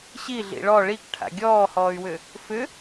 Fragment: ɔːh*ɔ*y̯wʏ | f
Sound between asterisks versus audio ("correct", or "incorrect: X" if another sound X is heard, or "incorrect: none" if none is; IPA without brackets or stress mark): incorrect: ɔː